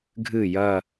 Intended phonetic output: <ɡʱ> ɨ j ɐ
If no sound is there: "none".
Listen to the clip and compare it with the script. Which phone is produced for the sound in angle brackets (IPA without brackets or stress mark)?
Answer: ɡʱ